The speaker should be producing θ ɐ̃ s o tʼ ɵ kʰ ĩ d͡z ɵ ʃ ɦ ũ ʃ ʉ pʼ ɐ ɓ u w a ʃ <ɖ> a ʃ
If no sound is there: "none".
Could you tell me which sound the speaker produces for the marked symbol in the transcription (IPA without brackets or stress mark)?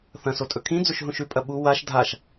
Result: dʱ